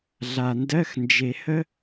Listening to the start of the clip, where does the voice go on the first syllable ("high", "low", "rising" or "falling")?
low